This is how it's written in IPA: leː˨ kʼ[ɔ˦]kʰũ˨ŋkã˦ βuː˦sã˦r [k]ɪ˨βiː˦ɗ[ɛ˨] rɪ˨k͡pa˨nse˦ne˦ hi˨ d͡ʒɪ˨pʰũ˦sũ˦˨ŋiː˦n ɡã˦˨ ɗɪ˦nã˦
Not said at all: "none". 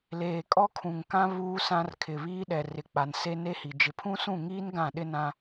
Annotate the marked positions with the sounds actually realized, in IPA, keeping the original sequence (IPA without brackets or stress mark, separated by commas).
ɔ˦, kʰ, ɛ˨